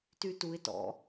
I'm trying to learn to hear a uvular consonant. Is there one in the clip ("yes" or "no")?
no